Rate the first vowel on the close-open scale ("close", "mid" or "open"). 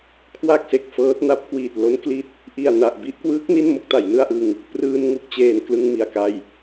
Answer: open